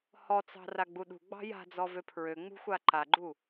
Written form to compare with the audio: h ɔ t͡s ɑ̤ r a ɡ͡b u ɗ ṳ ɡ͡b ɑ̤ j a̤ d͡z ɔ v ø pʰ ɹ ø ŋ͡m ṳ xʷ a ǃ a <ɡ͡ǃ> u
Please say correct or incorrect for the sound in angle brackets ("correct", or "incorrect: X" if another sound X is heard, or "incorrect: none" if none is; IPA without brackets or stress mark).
correct